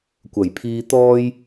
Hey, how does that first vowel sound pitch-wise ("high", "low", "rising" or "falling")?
low